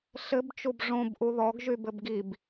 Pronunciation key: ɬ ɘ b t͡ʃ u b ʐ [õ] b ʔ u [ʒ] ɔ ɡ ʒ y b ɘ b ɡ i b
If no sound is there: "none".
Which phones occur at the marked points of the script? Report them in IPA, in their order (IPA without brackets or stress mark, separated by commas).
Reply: õ, ð